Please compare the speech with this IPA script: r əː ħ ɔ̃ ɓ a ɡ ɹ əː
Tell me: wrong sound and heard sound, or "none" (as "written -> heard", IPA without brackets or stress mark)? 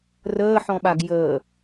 ɹ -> j